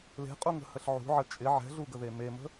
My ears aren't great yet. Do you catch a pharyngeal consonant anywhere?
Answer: yes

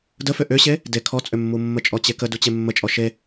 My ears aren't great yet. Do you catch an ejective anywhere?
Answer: yes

